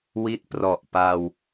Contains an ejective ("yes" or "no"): no